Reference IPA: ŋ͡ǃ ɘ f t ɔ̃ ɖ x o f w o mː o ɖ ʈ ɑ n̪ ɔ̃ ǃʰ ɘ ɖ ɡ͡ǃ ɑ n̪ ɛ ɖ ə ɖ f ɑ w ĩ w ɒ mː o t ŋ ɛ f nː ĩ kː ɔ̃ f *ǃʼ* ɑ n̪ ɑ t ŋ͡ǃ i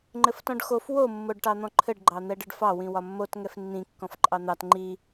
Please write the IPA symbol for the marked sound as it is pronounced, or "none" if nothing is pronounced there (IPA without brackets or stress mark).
ǃʼ